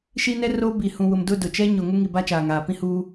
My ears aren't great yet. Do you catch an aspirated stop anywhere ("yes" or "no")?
no